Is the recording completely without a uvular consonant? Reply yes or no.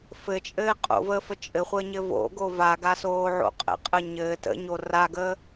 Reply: no